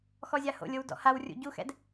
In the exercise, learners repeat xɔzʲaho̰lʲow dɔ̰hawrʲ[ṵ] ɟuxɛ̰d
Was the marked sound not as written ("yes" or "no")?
no